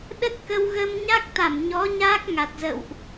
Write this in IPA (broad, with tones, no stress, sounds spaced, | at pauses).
ɗ ə˦˥ t̚ k ə˧ w ɣ əː˧ m ɲ a˦˥ k̚ t̪ a˧˩ m ɲ ɔ˨˦ ɲ aː˦˥ k̚ ŋ a˨˩ t̚ z ə̰˧˨ w ʔ